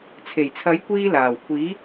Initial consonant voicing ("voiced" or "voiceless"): voiceless